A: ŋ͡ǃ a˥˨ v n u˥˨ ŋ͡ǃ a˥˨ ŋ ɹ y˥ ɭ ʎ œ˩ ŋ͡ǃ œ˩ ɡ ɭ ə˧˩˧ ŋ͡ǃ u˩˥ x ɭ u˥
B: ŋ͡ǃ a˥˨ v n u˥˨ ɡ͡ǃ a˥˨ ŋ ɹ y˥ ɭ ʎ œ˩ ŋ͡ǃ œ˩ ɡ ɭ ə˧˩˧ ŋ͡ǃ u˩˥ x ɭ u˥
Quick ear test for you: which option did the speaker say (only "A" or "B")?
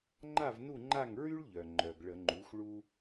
A